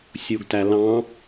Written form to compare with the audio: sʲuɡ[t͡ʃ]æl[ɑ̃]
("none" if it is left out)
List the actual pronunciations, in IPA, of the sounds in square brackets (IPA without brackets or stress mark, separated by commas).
t, ɑ̃